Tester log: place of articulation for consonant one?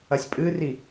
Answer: alveolar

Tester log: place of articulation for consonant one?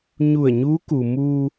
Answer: palatal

